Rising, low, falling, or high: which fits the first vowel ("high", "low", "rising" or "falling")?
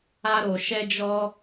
high